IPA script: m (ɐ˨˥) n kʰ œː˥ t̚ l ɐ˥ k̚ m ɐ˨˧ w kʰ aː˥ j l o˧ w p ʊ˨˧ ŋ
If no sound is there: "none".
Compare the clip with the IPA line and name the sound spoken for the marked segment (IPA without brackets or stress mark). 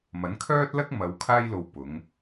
ɐ˨˥